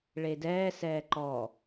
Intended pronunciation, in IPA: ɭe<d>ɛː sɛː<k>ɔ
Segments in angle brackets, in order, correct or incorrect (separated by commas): correct, incorrect